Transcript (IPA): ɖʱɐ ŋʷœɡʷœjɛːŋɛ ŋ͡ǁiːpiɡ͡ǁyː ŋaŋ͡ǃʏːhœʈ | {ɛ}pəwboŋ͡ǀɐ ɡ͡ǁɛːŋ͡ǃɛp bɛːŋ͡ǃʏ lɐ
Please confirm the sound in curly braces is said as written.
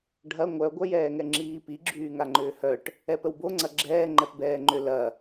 yes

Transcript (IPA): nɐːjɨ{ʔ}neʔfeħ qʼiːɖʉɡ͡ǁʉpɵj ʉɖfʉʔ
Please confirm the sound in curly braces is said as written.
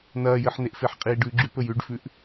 no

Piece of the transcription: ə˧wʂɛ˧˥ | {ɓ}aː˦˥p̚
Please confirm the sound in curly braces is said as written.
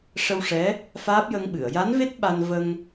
no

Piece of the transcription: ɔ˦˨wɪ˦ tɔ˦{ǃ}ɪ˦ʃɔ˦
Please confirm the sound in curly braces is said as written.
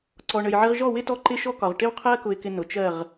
yes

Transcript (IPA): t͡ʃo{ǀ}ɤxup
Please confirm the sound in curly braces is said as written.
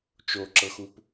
no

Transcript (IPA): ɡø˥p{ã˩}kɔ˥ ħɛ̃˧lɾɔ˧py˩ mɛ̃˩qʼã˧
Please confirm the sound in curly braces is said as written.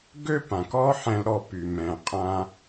yes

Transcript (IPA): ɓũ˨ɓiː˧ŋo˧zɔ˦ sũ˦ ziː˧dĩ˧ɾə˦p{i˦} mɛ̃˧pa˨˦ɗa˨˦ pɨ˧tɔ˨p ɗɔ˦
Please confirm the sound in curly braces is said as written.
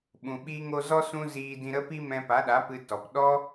yes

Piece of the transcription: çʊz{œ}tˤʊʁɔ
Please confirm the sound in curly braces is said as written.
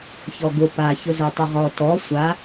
yes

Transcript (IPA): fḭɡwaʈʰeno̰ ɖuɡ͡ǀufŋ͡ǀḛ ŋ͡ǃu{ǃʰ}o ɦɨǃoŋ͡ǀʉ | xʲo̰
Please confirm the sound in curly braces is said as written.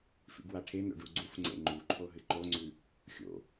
yes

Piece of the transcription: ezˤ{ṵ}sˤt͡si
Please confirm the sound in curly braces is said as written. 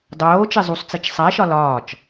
no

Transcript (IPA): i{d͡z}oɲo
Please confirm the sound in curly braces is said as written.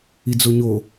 yes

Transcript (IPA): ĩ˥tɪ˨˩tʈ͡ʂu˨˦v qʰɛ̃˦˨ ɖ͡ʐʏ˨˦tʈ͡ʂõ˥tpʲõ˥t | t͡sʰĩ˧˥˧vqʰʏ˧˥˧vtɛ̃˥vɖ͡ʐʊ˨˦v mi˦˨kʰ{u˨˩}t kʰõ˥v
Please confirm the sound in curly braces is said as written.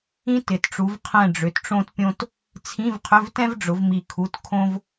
no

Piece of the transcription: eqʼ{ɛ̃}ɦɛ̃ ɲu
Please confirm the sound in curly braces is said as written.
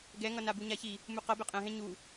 yes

